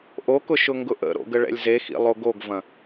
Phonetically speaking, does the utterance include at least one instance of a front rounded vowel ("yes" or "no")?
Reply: no